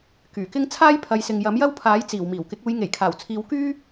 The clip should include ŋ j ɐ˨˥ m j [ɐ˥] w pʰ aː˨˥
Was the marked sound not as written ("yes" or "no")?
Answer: no